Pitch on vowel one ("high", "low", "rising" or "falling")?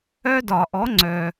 high